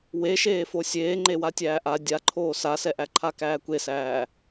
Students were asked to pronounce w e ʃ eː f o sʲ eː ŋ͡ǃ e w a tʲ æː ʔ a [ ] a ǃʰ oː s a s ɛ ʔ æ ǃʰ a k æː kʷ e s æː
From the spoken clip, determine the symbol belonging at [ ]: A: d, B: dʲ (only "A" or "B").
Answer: B